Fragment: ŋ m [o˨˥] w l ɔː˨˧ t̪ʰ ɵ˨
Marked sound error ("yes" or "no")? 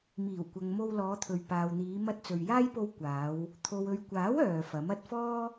yes